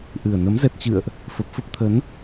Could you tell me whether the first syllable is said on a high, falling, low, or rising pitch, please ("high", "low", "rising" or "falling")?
low